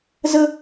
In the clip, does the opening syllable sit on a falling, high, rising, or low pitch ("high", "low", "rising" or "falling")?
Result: high